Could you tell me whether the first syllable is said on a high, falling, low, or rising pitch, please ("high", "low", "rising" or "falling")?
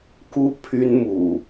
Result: high